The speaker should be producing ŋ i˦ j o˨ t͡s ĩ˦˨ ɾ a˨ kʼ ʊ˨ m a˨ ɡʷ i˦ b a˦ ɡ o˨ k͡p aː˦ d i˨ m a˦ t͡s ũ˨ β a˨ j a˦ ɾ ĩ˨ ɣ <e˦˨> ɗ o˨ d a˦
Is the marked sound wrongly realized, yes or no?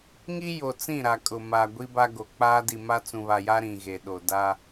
yes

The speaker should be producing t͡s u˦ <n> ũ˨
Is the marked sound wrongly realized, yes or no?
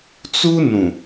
no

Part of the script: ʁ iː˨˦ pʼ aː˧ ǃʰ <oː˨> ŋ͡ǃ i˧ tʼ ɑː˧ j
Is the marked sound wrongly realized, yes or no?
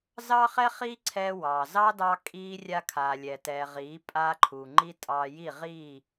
yes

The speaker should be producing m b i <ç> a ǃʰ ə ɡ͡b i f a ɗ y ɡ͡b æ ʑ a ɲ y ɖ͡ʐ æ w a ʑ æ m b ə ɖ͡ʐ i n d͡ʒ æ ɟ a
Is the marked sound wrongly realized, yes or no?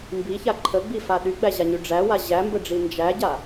no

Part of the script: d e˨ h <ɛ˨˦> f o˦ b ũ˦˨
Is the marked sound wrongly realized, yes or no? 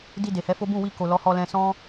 no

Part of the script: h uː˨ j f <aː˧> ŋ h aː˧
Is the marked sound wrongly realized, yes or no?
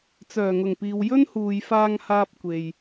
no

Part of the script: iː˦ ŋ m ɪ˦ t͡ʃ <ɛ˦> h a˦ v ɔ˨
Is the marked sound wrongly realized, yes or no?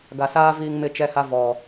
no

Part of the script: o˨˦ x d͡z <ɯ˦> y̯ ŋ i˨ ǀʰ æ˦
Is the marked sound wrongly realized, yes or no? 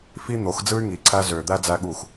no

